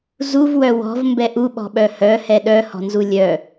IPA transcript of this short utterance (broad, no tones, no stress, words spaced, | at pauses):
zuvwœ wɔ̤vmbɛʔ uɓɔ̤ɓœ hœhɛ ɗœhɔ̤nzu lʲœ